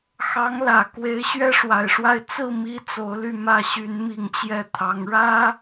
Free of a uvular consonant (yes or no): yes